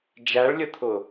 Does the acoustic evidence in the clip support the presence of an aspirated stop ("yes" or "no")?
yes